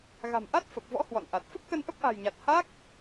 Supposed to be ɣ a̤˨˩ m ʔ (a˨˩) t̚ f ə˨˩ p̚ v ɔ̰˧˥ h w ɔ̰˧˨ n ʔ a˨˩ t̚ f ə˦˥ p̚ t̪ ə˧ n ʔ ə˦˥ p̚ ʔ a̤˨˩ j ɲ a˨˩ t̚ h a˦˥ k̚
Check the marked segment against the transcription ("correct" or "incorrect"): incorrect